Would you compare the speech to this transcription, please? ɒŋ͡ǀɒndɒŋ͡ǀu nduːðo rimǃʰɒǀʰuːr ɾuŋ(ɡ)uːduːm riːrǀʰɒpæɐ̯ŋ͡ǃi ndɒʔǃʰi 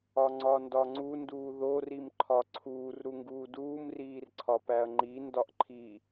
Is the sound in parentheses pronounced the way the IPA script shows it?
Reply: yes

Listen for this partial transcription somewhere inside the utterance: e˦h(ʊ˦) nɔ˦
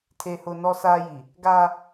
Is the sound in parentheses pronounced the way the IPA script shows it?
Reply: yes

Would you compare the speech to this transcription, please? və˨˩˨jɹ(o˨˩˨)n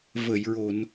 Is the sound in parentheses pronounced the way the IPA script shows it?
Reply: yes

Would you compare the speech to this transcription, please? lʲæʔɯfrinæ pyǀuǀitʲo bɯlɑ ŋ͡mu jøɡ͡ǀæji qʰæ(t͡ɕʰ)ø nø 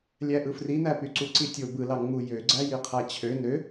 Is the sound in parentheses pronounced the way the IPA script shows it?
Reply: yes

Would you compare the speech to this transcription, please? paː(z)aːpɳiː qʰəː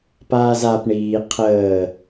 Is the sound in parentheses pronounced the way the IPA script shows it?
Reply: yes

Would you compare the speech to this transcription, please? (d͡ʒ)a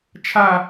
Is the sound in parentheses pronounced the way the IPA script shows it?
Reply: no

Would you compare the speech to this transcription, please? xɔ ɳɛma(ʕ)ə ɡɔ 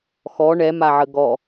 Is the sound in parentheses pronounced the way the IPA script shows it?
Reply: yes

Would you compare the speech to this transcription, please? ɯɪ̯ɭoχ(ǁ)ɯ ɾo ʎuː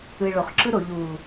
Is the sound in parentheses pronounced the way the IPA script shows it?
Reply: yes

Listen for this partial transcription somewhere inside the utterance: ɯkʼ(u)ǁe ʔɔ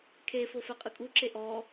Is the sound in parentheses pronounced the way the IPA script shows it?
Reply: yes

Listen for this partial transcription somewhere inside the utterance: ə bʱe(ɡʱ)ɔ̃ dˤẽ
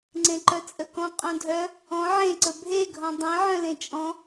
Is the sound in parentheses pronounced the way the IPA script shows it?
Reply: yes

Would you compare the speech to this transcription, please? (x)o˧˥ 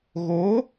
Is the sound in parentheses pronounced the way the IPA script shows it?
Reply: no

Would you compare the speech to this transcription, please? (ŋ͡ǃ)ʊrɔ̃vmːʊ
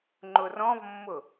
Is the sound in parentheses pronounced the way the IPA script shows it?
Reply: yes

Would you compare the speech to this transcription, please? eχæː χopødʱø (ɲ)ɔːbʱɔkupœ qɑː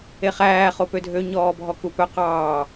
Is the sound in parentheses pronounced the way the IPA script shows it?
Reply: yes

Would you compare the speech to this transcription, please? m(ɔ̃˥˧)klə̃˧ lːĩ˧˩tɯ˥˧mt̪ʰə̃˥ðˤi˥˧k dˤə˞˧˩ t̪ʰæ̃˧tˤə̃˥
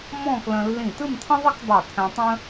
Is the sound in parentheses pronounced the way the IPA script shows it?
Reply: yes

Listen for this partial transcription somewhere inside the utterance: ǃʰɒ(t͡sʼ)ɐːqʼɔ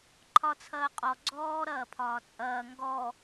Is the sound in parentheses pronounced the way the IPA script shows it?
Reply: no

